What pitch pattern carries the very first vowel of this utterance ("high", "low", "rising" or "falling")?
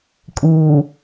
low